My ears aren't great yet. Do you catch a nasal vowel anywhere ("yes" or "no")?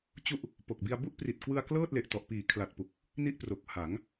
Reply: no